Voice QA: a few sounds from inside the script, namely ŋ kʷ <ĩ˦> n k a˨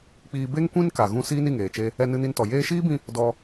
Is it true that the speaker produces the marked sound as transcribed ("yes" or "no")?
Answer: yes